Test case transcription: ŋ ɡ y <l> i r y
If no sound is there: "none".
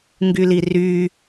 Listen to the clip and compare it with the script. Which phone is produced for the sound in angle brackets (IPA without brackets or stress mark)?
l